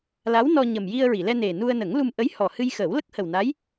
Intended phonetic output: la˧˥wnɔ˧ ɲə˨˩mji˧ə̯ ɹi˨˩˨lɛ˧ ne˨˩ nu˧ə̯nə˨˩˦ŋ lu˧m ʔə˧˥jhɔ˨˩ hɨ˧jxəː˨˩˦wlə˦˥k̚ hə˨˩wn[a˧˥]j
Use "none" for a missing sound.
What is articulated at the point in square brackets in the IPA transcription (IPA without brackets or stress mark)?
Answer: a˧˥